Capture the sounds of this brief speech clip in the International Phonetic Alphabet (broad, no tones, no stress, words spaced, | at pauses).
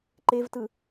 ǃevtɯ